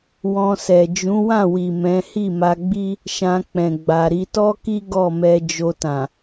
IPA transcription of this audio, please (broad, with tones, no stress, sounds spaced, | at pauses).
w ɔ̃˧ s ɛ˨ d͡ʒ ũ˨˦ w ã˦˨ w i˨ m ɛ̃˨˦ h i˦˨ m a˧ ɡ͡b i˦ | ʃ ã˧ k͡p ɛ̃˨ ɡ͡b a˨ ɾ i˧ t ɔ˦ k i˦ ɡ ɔ˦˨ m ɛ˧ d͡ʒ o˧ t ã˨